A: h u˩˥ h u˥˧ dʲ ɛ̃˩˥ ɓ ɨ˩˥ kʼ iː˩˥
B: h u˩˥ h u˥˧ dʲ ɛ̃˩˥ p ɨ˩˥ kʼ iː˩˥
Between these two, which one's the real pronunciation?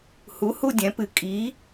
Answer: B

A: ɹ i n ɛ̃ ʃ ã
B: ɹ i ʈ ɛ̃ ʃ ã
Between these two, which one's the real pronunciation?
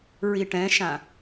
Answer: B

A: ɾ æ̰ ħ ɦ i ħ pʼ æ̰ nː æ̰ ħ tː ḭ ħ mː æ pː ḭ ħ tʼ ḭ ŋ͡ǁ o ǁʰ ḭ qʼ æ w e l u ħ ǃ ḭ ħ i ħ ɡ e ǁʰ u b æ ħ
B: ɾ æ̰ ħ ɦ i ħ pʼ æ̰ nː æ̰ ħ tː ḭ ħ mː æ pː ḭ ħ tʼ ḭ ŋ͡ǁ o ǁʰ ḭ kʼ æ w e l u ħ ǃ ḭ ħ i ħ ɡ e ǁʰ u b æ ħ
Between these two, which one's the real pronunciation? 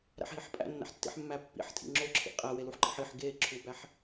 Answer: A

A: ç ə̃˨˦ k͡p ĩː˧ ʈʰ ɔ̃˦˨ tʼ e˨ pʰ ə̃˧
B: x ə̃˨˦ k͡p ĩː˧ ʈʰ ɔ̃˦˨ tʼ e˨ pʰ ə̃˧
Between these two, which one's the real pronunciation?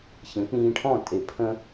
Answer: A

